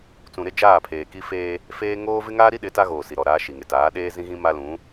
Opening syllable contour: low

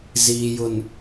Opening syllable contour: low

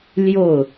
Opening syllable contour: falling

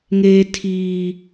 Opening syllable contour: high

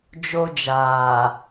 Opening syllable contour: high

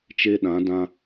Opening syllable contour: high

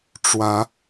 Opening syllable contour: rising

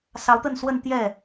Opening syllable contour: rising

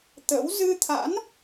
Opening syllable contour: rising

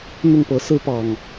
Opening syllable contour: falling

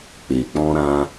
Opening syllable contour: low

